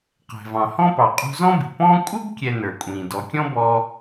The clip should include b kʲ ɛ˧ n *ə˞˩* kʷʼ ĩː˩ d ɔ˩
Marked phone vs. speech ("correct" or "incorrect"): correct